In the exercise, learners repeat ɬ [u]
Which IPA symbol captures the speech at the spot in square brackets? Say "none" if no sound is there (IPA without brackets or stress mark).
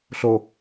o